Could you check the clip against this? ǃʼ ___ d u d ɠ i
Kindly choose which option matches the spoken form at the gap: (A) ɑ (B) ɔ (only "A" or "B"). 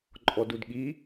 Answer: B